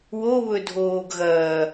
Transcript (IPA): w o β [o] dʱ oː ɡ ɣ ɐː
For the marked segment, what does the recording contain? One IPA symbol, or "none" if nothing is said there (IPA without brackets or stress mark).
ɵ